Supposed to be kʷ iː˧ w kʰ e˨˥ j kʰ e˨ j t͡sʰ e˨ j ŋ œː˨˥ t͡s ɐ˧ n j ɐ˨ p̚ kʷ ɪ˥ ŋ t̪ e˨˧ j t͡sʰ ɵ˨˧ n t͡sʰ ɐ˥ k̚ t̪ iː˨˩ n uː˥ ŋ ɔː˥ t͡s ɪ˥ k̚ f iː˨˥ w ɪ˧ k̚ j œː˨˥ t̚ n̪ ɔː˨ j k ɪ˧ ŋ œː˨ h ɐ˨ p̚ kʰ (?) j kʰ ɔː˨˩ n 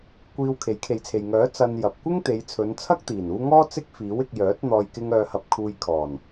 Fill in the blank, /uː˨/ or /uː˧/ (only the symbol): uː˧